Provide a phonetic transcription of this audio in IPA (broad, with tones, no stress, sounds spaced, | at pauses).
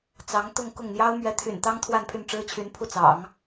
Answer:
t͡s ɑ˧˥ ŋ t̪ ʊ˥˧ ŋ k ʊ˥˩ ŋ n̪ j ɑ˥ ʊ̯ m ɥ ɛ˧˥ t̪ʰ y̰˨˩ n t̪ ɑ˥ ŋ t̪ʰ w a˥˧ n pʰ y˥˩ n ʈ͡ʂ ɻ̩˥ t͡ɕʰ y˧˥ n pʰ u˥˩ t͡s ɑ̰˨˩˦ ŋ